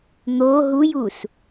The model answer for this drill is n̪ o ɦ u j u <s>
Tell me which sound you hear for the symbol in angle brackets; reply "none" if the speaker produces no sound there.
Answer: s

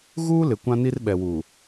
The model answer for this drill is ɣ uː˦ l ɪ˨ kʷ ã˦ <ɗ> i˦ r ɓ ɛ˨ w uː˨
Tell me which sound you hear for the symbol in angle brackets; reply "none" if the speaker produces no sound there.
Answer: n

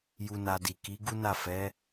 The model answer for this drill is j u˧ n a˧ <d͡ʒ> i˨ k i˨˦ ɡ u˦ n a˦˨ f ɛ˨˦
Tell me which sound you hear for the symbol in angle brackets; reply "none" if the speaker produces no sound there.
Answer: d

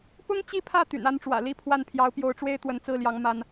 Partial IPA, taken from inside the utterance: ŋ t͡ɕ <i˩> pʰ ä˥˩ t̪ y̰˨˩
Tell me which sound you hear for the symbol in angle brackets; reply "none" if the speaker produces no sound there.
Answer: i˥˧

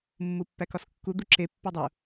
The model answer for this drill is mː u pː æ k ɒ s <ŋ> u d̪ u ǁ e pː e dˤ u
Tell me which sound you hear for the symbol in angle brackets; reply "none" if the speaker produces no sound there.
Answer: kː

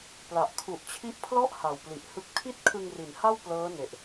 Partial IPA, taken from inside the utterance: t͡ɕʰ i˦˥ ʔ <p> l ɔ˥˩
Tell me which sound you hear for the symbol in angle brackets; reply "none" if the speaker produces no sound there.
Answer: pʰ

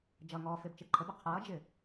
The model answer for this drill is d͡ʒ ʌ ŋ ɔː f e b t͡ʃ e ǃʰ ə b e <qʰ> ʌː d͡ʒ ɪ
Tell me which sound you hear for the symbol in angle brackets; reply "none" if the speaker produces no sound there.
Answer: qʰ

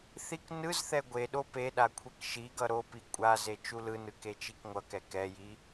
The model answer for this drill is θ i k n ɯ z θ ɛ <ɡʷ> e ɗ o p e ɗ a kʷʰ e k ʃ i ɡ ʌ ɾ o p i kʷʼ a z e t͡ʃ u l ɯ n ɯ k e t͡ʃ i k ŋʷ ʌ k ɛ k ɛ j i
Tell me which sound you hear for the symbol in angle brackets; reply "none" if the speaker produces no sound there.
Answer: ɡʷ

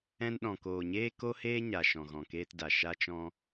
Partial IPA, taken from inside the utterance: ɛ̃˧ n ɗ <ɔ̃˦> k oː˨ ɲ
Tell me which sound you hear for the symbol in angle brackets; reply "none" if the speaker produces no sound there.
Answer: ɔ̃˨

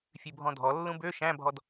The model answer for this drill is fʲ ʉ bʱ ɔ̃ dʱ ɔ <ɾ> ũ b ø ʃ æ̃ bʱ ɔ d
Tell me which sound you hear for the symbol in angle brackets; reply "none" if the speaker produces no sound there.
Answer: lː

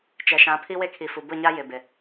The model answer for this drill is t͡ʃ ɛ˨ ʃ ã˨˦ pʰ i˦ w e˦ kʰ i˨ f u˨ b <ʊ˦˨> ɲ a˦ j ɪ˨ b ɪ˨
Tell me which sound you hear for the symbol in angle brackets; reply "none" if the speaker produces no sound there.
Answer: ʊ˦˨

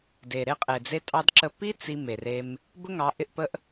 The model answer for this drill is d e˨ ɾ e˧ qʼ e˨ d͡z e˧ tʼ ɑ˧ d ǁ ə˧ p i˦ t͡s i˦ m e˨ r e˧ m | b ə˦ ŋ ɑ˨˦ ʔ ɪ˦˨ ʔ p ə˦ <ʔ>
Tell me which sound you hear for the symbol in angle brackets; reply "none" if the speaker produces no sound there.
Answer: ʔ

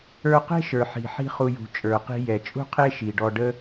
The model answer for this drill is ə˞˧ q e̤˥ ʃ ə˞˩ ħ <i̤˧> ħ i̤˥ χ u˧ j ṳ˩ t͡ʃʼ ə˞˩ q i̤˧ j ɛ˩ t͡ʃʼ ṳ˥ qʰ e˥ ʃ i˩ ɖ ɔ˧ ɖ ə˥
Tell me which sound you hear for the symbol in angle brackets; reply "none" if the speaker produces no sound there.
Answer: i̤˩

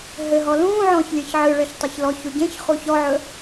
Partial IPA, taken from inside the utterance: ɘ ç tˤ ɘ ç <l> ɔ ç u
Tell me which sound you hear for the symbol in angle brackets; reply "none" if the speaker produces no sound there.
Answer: l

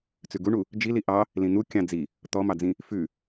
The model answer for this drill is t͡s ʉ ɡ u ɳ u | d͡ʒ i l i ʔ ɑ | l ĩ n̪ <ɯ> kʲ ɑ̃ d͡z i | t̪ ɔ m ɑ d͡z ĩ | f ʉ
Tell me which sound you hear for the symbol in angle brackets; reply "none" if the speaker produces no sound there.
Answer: u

